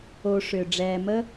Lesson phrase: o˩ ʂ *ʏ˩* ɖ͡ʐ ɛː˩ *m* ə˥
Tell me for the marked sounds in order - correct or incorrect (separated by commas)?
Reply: correct, correct